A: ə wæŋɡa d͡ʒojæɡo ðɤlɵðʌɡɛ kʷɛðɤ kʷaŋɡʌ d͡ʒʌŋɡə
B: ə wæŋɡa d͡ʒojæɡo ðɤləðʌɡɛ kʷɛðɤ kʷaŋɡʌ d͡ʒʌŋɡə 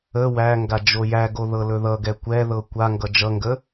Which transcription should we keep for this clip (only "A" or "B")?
A